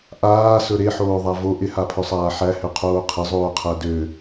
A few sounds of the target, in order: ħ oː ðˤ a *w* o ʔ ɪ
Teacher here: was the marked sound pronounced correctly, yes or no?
no